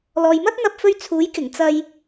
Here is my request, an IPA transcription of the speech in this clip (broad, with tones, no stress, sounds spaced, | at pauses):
l ɔː˨ j m ɐ˥ t̚ n̪ ɐ˧ p̚ f ɵ˧ ɥ t͡sʰ uː˨˥ j k ɪ˨˩ ŋ t͡s ɐ˧ j